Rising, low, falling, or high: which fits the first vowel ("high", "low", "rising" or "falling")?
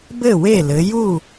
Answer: falling